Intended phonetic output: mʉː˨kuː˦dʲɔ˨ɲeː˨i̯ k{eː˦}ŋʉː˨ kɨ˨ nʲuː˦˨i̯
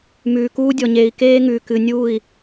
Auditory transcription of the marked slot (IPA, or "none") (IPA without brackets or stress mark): eː˦